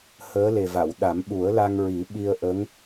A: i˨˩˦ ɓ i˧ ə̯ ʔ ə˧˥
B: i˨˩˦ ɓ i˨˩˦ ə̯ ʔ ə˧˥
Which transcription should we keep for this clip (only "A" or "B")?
A